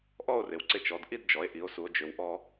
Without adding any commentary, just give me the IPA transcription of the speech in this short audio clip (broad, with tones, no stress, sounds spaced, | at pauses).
ʔ ɔ˥˧ o̯ r ɪ˩˧ w ǀ ɪ˧ t͡ʃ ɔ˩˧ d ʔ i˥˧ d d͡ʒ ɔ˩˧ e̯ ʔ i˩˧ o̯ s u˩˧ o̯ d͡ʒ ʏ˩˧ w ʔ ɔ˧